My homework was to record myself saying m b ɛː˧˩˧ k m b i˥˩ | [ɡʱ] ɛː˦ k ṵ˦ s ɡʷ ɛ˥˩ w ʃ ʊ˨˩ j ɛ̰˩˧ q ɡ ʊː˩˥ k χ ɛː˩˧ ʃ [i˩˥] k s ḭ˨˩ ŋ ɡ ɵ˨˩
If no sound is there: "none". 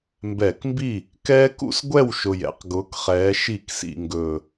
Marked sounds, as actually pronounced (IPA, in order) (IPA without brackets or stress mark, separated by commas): k, i˧˩˧